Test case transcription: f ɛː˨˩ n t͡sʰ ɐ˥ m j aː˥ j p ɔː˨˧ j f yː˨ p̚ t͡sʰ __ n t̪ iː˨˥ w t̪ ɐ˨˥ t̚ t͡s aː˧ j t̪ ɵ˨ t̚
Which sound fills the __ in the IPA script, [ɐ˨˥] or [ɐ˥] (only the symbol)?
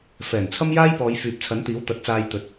ɐ˨˥